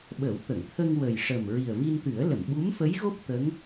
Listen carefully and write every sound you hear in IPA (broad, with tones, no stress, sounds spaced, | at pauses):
ɓ ə˨˩˦ w t̪ ə˨˩˨ ŋ t̪ʰ ə˧ ŋ w ə˨˩ j ʂ ə˨˩ m ɹ i˨˩ ə̯ v i˧ n t̪ ɨ˨˩˦ ə̯ l ə˨˩˨ m ɓ u˧˥ m f ə˧˥ j ɣ o˦˥ p̚ t̪ ə˧˥ ŋ